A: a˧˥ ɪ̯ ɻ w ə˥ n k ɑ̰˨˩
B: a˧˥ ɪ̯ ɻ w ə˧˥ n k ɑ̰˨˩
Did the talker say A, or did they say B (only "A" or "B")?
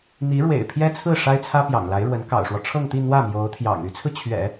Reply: B